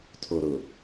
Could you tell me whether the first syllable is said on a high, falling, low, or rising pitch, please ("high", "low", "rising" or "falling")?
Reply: low